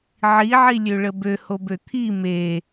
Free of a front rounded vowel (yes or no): no